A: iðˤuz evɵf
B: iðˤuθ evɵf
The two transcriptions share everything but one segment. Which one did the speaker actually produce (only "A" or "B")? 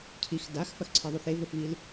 B